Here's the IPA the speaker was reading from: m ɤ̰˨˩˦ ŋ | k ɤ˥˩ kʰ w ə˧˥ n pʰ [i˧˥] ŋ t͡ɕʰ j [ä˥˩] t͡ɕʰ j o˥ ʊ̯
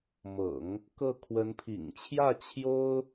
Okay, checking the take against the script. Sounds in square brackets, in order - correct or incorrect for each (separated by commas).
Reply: incorrect, correct